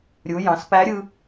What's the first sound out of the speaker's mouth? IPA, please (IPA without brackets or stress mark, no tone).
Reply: ɾʲ